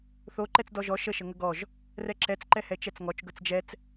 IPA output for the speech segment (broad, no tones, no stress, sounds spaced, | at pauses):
θ o ǃ ɛ t͡s d ɔ ʒ ɔ ʃ ə ʃ ə ŋ ə ɡ ɔ ʒ | r ɛ ǁ ɛ t͡s ǃ ɛ h ɛ t͡ʃ ɛ t͡s ŋ ɔ t͡ʃ ɡ ɵ t͡s d͡ʒ ɛ t͡s